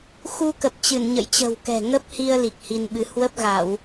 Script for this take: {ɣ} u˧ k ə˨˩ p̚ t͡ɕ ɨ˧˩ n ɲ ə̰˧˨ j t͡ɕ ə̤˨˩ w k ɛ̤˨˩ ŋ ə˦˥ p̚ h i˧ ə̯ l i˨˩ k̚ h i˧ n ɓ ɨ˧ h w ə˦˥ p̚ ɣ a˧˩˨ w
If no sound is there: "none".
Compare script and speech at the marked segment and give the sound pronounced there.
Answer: x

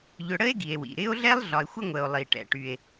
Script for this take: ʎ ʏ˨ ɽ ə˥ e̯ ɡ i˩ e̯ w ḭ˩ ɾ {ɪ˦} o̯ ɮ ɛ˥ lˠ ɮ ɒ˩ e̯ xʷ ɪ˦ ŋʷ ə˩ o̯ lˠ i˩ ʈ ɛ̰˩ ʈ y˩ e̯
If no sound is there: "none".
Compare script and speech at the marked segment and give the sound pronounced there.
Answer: ɪ˥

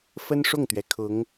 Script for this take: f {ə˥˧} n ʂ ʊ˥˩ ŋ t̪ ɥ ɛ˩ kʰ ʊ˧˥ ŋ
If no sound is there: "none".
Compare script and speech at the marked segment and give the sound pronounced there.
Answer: ə˥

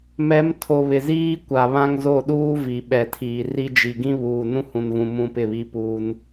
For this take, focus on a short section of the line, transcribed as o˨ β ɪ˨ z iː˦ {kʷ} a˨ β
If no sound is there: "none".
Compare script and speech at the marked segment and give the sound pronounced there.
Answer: kʷ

